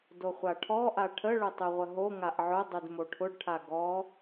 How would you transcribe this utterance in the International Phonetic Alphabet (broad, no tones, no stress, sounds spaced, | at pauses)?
d o χʷ a ʈʰ ɔ ʔ a ʈʰ ə ɭ ʊ tˤ y ʁʷ ə ɦ o ŋ a ʔ ʕ ʊ dˤ y d m o ʈʰ ʊ ɖ ʈʰ a ɡ ɔ